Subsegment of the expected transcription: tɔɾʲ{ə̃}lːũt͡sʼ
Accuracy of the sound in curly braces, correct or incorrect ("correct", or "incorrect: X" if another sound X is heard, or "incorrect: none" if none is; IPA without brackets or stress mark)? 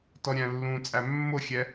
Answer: incorrect: æ̃